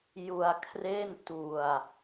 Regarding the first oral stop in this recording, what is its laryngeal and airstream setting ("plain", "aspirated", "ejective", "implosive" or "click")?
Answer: aspirated